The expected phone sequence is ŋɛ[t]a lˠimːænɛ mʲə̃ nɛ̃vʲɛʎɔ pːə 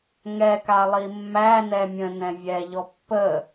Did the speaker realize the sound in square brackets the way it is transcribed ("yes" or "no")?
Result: no